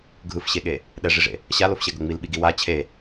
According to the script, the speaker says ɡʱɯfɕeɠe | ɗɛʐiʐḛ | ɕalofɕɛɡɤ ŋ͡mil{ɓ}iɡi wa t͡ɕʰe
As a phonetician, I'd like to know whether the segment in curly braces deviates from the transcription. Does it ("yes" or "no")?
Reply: no